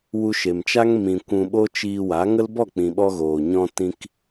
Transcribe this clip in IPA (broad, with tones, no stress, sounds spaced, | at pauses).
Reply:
w u˧ ʃ e˨ m t͡ʃ a˦ ŋ m ĩ˧ kʷ ũ˧ ɓ o˦ t͡ʃ iː˧ w a˨˦ ŋ ə˦ l b ɔ˦˨ k͡p ĩ˨ ɓ ɔ˧ ɣ oː˨ ɲ ɔ̃˧ t ĩ˧ k